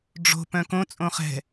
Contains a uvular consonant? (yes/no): yes